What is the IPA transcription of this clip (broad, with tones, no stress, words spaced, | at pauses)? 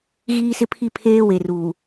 ɣiː˦sɪ˦pʰi˦ pʰeː˦we˨ruː˨